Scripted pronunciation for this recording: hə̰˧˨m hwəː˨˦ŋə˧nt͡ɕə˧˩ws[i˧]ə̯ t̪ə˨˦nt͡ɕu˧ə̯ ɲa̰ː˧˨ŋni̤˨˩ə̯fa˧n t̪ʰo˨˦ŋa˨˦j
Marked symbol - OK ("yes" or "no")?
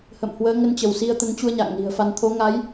yes